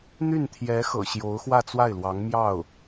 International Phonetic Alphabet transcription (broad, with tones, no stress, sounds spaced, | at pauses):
n̪ y˥˩ n t̪ʰ j ɛ˧˥ x ɤ̰˨˩ ɕ j o˧˥ ʊ̯ x w ä˥˧ t͡s w a˥˩ ɪ̯ l w ɑ˧˥ ŋ m j ɑ˥˩ ʊ̯